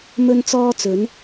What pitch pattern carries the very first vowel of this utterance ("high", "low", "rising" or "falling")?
high